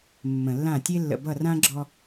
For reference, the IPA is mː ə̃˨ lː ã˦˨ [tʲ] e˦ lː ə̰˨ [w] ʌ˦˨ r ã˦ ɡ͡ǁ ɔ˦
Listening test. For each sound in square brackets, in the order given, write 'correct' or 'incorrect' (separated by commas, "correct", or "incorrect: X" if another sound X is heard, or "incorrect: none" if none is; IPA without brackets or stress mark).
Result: correct, incorrect: b